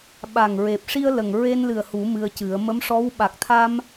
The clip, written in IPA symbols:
ɓ a˨˩ ŋ ɹ e˨˩ p̚ ʂ i˧ ə̯ l ə˨˩ ŋ ɹ e˧ n l ɨ˨˩ ə̯ h u˨˩˦ m ɨ˧ ə̯ c ɨ˨˩˦ ə̯ m ə˧˥ m ʂ ɔ˧˥ w ɓ a˨˩ k̚ t̪ʰ a˧ m

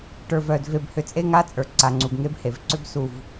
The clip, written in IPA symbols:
ʈ ə˞˨ v œ˨ d v e˨ b h ʏ˨ t͡sʼ e˦ ŋ a˦ t͡sʼ ə˞˨ ǀ a˨ ŋ͡ǀ u˨ b ŋ e˦ b h e˨ v ǀ ʏ˦ b s u˨ v

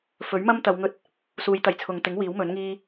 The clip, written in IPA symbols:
f ɵ˨˥ ɥ m ɐ˥ m t̪ ɐ˨˧ w ŋ ɵ˧ t̚ | s uː˨˧ j t̪ ɐ˨˩ j t͡sʰ ʊ˨ ŋ t̪ ɪ˨˥ ŋ w iː˨˥ w m ɵ˨˥ n ŋ iː˥

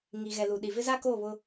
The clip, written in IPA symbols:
ŋ i˨ ɣ ɛ˨ l u˨ ɗ i˨ v ɪ˦ z a˦ k oː˦˨ β ʊ˦

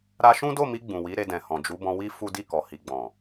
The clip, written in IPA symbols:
ɾ a˧ ʃ ũ˦ d o˦˨ m i˧ ɡ͡b ũ˨ w i˨˦ ɾ e˧ d ɛ̃˨ h ɔ̃˨ d͡ʒ u˨˦ b ɔ̃˧ w i˦ f u˦ d i˦˨ k ɔ˨ h i˨ ɡ͡b ɔ̃˨

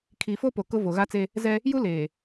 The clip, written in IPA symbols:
kʰ i˨ f o˦ p o˨ k ʊ˦ v o˨ ɣ a˦ t͡s e˦ | z ɛ˦ | j u˦ l eː˨

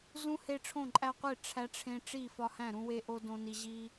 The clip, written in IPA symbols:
z ũ˦ h e˦ ʈ͡ʂʰ õ˥˨ ǃʼ æ˦ qʷ e˥˨ ʈ͡ʂʰ æ˦ ʈ͡ʂʰ ẽ˦ ʈ͡ʂ i˥˨ f ɒ˦ h æ̃˥˨ ɾ ũ˦ w e˦ ʔ o˦ d õ˦ n i˦ ʑ i˦

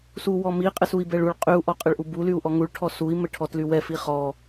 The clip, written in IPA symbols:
s u w ɔ m i qʼ ɛ s u i̯ b ɛ ɭ u ɭ qʼ y u̯ ʔ ɔ qʼ ɘ ɭ ʔ u b u l y u̯ ʔ ɔ ŋ u ɭ ʈʰ ɔ s u i̯ m ɘ ʈʰ ɔ t l y w ɛ f i χ ɔ

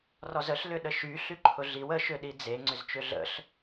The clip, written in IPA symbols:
r ɔ z ə ɬ l ʏ ɗ ə ʃ y ɬ y ǃʰ ʊ ɮ i w ə ʃ ʏ ɗ i d͡z e ŋ͡ǀ ʏ z t͡ʃ ʏ ɮ ə̰ ɬ

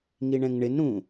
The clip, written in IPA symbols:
ŋ i ɳ ɛ̃ ŋ ɳ ɪ n ɾ ũ

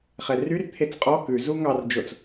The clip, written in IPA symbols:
χ ɛ r y r t̪ʰ e t͡s qʼ ɔ k ʉ z u ŋ ɑ r d͡ʒ o t͡s

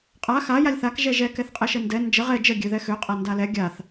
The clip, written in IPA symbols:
qʼ a x a j a lʲ θ a k ʒ ɛ ʒ ɛ k ɛ θ qʼ ɛ ʃ ə n d ɛ n d͡ʒ ə ʁ ɛ d͡ʒ ə ɡʲ ø ð ɛ x ø qʼ a n d a l ɛ ɡʲ a θ

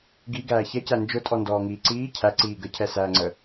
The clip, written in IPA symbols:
ɡ i ɡ æː ç ɛ c æ n d͡ʒ ʊ tʼ ɔ n d ɔː ŋ iː ǀ iː cʰ æ ǀ iː ɡ ə cʰ ɛ s æː ŋ͡ǀ ə

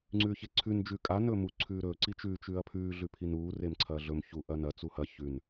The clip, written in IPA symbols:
ŋ͡ǀ ʉː ç e ǀʰ ʉ n d͡ʒ ʉ kʼ a n ɵː m u ǀʰ ʉː ɾ ɵː ǀ i t͡ʃ ʉ t͡ʃ ʉː ɐ̯ pʰ ʉː ɮ ʉ pʰ i n uː r e m ǀʰ ɐː ɮ ɵ m ç u ʔ ɐ n ɐ t͡s u h ɐ ç ʉ n

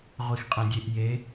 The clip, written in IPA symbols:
ʁʷ i x qʼ ẽ dʲ e ʔ j e

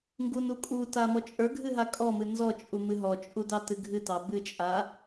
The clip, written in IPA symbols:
ŋ ɡ u n u kʼ u t a m ɔ t͡ʃʼ ə˞ ɡʱ ɨ ɦ a kʼ ɔ m ɨ n z ɔ t͡ʃʼ u m ɨ ɦ ɔ t͡ʃʼ u d ɑ t ɨ ɡʱ ɨ t ɑ b ɨ t͡ʃʼ a

